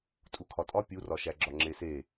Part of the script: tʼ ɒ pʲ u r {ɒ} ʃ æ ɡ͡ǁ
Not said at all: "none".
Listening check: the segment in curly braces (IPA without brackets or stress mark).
ɒ